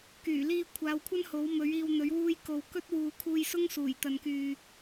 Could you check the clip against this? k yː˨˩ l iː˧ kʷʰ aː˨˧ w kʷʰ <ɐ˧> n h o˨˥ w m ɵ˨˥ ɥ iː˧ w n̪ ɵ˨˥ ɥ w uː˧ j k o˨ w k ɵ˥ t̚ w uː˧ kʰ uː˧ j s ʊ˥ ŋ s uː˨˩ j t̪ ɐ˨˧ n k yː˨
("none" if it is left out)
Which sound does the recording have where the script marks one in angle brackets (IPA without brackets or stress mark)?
ɐ˥